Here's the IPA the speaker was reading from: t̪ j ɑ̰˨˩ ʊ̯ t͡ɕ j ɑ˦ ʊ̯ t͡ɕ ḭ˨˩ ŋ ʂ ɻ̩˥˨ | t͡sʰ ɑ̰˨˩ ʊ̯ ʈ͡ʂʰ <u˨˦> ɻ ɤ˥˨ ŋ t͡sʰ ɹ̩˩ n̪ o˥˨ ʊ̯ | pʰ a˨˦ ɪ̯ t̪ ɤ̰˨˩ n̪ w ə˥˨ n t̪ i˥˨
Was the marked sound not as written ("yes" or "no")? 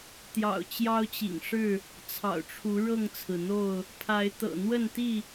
no